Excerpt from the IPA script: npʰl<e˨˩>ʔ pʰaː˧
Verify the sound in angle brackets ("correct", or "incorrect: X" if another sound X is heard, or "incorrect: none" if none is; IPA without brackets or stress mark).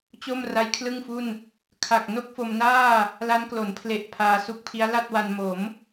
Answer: correct